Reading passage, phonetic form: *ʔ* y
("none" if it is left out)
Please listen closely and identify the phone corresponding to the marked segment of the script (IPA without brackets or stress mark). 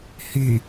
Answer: h